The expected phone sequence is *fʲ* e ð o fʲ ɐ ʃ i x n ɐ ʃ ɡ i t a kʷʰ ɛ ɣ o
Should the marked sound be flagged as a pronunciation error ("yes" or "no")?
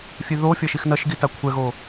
no